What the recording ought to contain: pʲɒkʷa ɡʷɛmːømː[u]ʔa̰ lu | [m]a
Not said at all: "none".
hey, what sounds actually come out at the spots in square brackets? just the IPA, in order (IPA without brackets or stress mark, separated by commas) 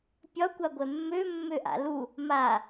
ø, m